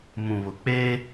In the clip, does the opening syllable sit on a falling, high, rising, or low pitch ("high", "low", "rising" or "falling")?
low